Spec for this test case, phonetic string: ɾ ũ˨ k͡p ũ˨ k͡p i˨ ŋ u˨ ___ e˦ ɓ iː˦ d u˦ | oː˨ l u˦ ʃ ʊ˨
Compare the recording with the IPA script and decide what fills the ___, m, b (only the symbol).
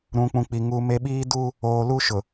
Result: m